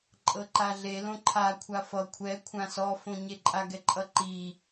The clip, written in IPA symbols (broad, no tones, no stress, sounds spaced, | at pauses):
ǃʼ ɤ ǃ a ɮ e l õ ǃʰ a kʷʰ a f ʌ kʷʰ ɛ kʷʰ ã s ɔ f õ ɲ e ǃʼ a ɡ ɛ ǃʼ ʌ ǃ i